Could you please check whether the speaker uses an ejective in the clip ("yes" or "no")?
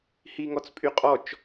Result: yes